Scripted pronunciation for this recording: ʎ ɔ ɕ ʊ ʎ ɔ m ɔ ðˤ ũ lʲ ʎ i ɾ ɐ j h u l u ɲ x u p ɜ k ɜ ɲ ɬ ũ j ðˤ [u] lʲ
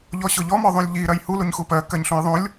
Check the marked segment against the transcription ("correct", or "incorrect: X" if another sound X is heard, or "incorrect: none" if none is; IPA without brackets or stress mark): incorrect: ũ